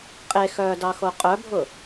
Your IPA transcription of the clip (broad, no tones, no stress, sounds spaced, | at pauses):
qʼ e x œː d ɑ x o qʼ œ bʱ ʊ